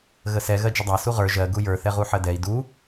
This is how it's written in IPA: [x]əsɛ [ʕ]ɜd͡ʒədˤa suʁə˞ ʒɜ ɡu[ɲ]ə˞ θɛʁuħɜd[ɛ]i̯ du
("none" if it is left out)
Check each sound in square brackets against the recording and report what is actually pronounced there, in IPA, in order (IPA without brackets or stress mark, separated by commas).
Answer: ɣ, ɣ, j, ɛ